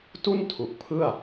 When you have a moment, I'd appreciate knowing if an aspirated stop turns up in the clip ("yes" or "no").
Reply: yes